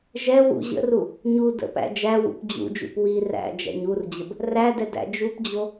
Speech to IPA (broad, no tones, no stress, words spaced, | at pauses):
ʒɛ wṵ ʑə̰ru | ɲu də̰pæ̰ d͡ʒæwṵp d͡ʑṵd͡ʒṵp wi ræ̰ d͡ʒæ̰ɲurd͡ʑəb | rædɛ dæ̰d͡ʒupd͡ʑo